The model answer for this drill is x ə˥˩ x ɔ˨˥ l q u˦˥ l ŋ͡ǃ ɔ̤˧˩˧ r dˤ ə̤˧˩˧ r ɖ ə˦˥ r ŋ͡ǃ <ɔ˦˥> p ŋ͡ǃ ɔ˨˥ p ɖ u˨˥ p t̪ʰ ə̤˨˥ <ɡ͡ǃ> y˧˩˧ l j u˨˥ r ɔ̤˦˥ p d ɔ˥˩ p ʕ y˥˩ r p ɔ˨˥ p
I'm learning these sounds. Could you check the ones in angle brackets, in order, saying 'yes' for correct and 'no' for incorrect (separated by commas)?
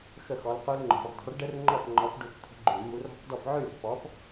no, yes